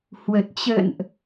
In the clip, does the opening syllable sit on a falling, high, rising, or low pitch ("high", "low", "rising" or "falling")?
low